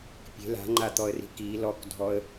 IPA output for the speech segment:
pʲe̤ la̤ŋ͡ǃat̪ɔə̯ri̤ ki lɔkdʱɔə̯

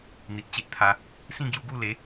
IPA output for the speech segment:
n̪i˨t̚t͡ɕe˦ʔt̪ʰa˧ | sĩ˥˧ɡju˧ɡu˥˧le˨˦

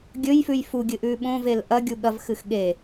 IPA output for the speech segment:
ɡʲɵjfʉj fuɡʲɨʔʉ ɓõvel ʔɐɡʲu ɠɐvxɨx ɠe

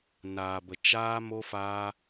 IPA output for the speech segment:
naː˨bə˨ t͡ʃaː˦mo˦faː˦

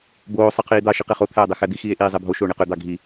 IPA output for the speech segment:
boː sˤɯqʰiːd̪ɑ ʃiqeχo t̪ʰæːdˤexæd̪i xiːe̯ʔiːzˤebʱo ʃoːɳeqø d̪ɑɡʱi

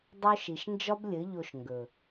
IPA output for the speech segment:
dˤo˦ʃi˨ʃ nd͡ʒɒ˦blʲɘ˨˦ʎo˧ʃ ŋɡɵ˨

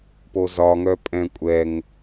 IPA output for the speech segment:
pozɒŋœ pʼɛ̃kʷʼɛŋ

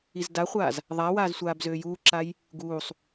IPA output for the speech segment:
izdaχʷaːz | ðˤawaːz sʷaːbzøːjuːǁaj | ɡuːsˤ

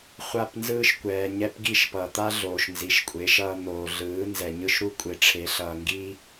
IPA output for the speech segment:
χʷa˦˨p nzɯː˦ʃkʷɛː˨ ɲɛ˧pɡi˦˨ʃpʌ˨t̪a˦ ɮoː˨ʃnzi˨ʃkʷʼe˨˦ʃʌː˧ n̪oː˨ɮɯː˨˦ nzɛ˨ɲɯ˦ʃ ɾu˦kʷʼe˨ʈ͡ʂʰe˨˦ ɬʌː˨ŋɡiː˦

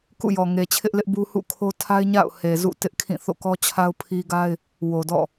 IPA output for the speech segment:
kṵ˦˨jɔ˨ ŋe˨t͡ɕʰɪ˦ʔlɪ˦ʔbu˦ hṵ˦˨kʰo˦ tʰa˦ɪ̯ ɲa̰˦˨ʊ̯ he˨zṵ˦˨ tɪ˦ʔkʰĩ˦˨ θo̰˦˨kɔ˦t͡ɕʰa˦ʊ̯ pʰi˦ ɡa˦ɪ̯ | wo˨dɔ̰˦˨

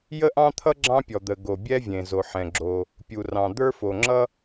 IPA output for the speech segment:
jə˥ʔɑ̃˥t̪ʰʌ˥ ɡ͡ǁɑ̃˥pʲɔ˩d̪ə˩ ɡo˩bʲɛ˥vʲẽ˩ zo˩ħɛ̃˩ɡ͡ǁo˩ | pʲu˩rɑ̃˩ d̪ə˞˥fo˩ŋ͡ǁʌ˥

